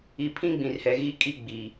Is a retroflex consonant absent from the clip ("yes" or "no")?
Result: yes